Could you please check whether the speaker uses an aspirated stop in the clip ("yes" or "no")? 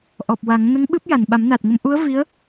no